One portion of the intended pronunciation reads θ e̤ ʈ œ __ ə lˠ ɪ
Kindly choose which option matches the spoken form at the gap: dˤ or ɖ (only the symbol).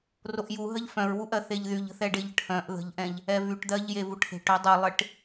dˤ